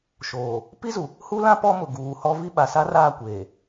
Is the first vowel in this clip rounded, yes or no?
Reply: yes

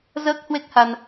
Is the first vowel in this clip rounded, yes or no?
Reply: no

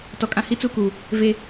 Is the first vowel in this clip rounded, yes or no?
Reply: yes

